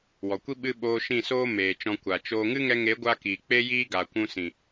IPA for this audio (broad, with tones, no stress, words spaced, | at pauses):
wɔ˨kʷi˦ ɓɨ˦ ɓoː˧ʃĩ˦˨soː˦ meː˨ t͡ʃɔ̃˧ kʷa˨t͡ʃoː˦ ŋɨ˦ŋɛ˧ŋe˨˦ɡʷa˧ kiː˨ k͡pe˦jiː˦ ɡaː˨kʷũ˧sĩ˨